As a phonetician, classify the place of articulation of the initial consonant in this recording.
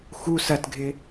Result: velar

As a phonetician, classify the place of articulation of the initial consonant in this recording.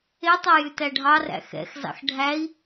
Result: alveolar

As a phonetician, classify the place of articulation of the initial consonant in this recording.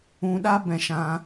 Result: alveolar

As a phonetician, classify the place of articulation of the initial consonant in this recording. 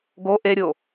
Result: velar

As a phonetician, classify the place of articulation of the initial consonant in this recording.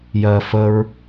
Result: palatal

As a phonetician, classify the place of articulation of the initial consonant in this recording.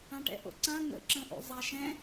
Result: retroflex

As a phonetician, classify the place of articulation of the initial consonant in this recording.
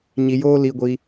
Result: palatal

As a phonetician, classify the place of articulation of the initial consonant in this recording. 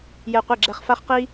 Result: palatal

